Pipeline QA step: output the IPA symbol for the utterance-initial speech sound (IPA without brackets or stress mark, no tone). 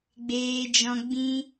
ɡ͡b